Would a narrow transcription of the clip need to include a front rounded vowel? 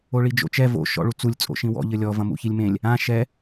no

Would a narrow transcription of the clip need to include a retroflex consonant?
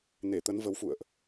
no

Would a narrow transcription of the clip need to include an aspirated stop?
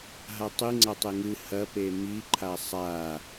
yes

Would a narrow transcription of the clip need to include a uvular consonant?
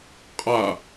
yes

